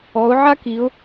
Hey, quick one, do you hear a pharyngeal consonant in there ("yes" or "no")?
yes